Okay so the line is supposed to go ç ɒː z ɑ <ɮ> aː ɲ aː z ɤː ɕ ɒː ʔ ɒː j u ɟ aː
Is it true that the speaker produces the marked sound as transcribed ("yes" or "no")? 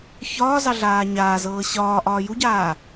yes